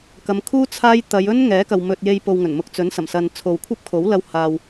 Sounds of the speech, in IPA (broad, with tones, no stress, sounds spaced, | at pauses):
k ɐ˨˧ m kʰ uː˥ t͡sʰ aː˥ j t̪ ɐ˨˧ j ɵ˥ n ŋ ɛː˨˥ k ɐ˨ w m ɵ˨ t̚ j e˧ j p o˨ w ŋ ɵ˨˩ n m ʊ˧ k̚ t͡s ɵ˨˥ n s ɐ˨˩ m s ɐ˨ n t͡sʰ o˨ w kʷʰ ɐ˥ p̚ kʰ o˨˥ w l ɐ˧ w h aː˨ w